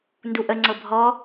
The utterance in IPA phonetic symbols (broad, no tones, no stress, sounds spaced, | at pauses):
n d u ʔ ə ŋ͡ǀ ɤ bʱ ɔ